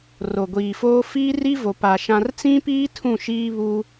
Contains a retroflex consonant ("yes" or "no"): no